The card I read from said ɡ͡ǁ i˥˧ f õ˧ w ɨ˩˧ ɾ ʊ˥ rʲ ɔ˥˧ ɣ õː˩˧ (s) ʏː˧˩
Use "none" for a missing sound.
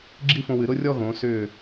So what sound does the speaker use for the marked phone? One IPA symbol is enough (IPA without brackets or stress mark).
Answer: s